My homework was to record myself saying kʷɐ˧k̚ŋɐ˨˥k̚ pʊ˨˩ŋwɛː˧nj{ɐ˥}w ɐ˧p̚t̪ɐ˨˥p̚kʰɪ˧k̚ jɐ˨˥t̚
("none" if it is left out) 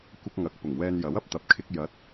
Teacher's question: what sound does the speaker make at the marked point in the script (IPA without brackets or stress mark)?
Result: ɐ˨˥